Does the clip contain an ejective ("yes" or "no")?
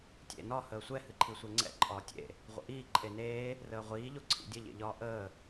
yes